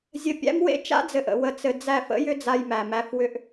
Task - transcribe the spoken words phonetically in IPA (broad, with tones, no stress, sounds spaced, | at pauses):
zʲ ɘ˨ pʲ æ̰˦ m w ḛ˦ t͡ʃ a̰˦ d͡z ɘ˨ ʔ ə̰˨ w ə˨ t͡s ɘ˨ d͡z æ˦˨ f ə̰˦ j ʏ˦ d͡z a˦ j m æ˨ m æ˦ f w ʏ˦ ʔ